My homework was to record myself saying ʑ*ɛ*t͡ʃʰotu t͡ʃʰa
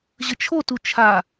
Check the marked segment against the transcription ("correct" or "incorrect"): incorrect